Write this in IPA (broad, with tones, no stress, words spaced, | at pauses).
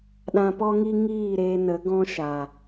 ɗã˧pɔ˦ŋi˦ ŋiː˦˨ɾeː˧nə˨˦ ɡɔ̃˦ʃa˨